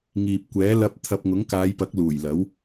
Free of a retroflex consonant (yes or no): yes